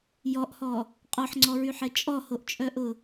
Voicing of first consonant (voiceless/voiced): voiced